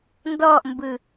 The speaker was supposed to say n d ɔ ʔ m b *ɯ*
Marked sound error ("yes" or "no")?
no